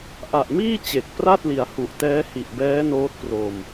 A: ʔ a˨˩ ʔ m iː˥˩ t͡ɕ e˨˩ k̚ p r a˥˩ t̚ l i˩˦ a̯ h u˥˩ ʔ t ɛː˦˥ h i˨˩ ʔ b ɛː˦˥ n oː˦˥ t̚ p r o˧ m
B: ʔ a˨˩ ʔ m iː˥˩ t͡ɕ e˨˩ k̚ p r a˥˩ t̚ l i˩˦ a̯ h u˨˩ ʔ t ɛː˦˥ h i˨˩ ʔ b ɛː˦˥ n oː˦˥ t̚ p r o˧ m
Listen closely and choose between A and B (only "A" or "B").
B